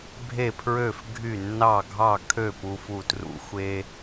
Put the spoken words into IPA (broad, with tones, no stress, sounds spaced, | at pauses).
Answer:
bʱ e˧˩ pʰ ɹ ø˧˩ f ɡʱ y˧˩ nː ɑ˧˩ ɡʱ ɑ˧˩ kʰ ø˧˩ p u˧ f u˧˩ t r ṵ˧ xʷ e˧